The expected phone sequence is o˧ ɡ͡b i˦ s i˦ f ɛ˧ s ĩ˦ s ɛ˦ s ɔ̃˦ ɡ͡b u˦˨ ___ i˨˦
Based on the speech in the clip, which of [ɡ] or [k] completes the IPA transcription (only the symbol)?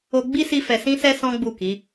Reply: k